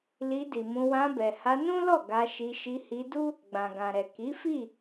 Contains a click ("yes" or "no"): no